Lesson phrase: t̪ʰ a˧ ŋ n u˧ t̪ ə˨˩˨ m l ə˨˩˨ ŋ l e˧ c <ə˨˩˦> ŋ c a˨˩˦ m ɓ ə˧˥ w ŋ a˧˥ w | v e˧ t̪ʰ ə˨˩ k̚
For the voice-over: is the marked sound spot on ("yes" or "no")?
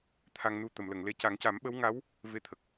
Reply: no